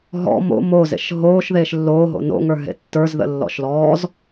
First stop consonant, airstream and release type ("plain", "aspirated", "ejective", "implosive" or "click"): plain